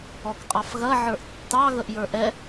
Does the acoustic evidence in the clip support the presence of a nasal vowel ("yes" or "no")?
no